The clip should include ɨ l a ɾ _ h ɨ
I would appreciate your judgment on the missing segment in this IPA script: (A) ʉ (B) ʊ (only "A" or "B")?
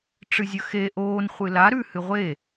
A